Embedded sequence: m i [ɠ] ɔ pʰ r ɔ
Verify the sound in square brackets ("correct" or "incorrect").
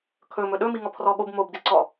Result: incorrect